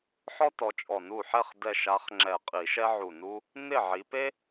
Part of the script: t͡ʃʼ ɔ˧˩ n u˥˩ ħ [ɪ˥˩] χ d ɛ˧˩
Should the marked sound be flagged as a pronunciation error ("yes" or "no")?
yes